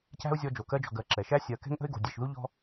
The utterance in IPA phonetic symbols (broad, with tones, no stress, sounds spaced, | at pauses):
c æ̤˥ ʊ̯ zʲ ɔ˦ d͡ʒ o˩ k ɜ˥ d͡ʒ ɔ̤˨ ɡ ɜ˨ ǁ ɛ˩ ʃ æ˥ sʲ ɜ˨ k ɛ̤˥ ŋ ʔ ə̤˥ ɪ̯ ɡ o̤˨ dʲ ɛ˨ ʃ ð u˥ ʎ ɔ̤˦